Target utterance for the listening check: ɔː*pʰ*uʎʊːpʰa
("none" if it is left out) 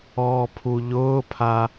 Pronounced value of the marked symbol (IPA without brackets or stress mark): pʰ